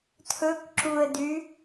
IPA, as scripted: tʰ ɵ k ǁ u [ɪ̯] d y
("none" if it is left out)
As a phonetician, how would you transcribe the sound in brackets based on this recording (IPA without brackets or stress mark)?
ə̯